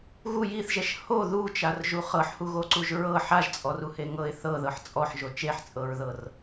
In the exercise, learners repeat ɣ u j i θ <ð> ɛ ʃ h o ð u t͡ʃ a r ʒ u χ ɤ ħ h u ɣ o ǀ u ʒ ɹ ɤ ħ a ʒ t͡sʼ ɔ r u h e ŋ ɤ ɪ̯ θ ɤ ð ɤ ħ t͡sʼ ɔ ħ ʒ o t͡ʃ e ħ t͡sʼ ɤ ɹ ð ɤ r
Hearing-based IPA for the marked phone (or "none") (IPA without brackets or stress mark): ʒ